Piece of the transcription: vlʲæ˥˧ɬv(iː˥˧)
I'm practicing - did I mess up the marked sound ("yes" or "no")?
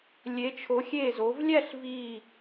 yes